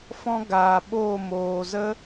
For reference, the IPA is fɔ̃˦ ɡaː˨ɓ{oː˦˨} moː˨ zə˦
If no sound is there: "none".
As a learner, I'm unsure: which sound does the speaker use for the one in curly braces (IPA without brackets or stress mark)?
oː˦˨